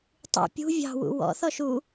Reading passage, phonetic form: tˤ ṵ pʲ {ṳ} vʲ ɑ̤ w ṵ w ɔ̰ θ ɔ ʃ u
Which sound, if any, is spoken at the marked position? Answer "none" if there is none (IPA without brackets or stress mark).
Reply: ṳ